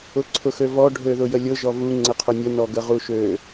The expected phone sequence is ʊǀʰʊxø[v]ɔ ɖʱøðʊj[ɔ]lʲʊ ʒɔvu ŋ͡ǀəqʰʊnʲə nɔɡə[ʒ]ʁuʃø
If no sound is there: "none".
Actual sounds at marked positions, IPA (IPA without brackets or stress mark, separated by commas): v, ə, none